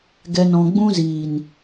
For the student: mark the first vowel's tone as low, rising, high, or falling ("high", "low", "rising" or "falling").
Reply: low